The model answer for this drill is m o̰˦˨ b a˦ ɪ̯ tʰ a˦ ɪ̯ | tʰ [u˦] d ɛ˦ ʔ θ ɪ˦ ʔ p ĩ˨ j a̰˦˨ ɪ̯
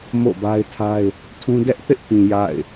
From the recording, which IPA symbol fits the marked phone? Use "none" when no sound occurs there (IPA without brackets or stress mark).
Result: ũ˦